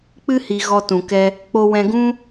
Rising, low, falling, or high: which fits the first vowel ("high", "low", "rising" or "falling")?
high